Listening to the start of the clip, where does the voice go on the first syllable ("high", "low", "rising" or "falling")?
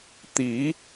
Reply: rising